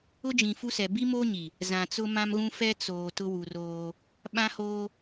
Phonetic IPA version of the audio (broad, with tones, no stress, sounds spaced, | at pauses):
ʊ˦ d͡ʒ ĩ˨ f u˦ s ɛ˨ b i˦ m oː˦ ɲ i˨ | z ã˨ t͡s ʊ˦ m ã˦ m ɣ ũ˦ f ɛ˦ t͡s oː˨ t ʊ˦ w u˨ r oː˦ | ɓ ã˦ h oː˦